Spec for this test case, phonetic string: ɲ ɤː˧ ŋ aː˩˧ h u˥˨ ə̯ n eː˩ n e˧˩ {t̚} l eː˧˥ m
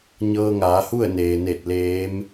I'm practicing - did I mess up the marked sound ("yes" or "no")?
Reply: no